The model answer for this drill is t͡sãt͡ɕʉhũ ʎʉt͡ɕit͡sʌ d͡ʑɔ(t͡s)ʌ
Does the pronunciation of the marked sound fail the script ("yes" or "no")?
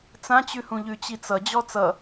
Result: no